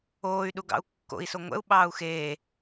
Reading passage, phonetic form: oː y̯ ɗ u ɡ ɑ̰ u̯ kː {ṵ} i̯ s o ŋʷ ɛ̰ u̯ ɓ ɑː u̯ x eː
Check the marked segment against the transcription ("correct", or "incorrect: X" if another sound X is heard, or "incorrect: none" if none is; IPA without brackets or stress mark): incorrect: o̰